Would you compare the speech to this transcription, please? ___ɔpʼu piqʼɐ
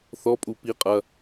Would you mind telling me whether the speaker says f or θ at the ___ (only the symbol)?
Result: θ